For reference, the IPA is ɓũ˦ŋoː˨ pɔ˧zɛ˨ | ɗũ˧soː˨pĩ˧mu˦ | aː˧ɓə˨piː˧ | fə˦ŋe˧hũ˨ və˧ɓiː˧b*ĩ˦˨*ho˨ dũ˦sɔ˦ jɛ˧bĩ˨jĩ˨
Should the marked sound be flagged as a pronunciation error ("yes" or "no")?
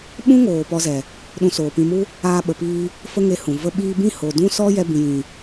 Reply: no